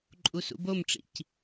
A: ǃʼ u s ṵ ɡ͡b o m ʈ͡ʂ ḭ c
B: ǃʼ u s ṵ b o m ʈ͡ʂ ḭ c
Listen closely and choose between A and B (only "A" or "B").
B